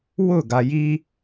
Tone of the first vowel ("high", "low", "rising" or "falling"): falling